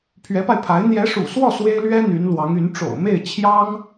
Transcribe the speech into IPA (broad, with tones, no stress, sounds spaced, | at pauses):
pʰ ɥ ɛ˧˥ p a˧ ɪ̯ pʰ a˧˥ ɪ̯ n̪ j ɛ˧˥ ʂ ṵ˨˩ s w ɔ˥˩ s w e˥ ɪ̯ l ɥ ɛ˥ n̪ y˧˥ n l w ɑ˧˥ ŋ y˧˥ n ʈ͡ʂ o̰˨˩ ʊ̯ m e˥˩ ɪ̯ t͡ɕʰ j ɑ˥ ŋ